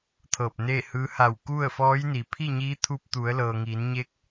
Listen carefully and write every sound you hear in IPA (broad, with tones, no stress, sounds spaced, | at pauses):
t̪ʰ ɤː˧˩ p̚ n eː˥˨ h ɯː˧˥ h a˧˩ w k u˥˨ ə̯ f ɔː˧˥ j n iː˩ pʰ i˥˨ ɲ iː˧˥ t̪ʰ u˧ p̚ t̪ u˩˧ ə̯ l ɤː˩ ŋ iː˩˧ n ɲ eː˧˥ k̚